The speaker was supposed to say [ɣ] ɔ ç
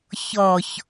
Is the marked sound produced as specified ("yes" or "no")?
no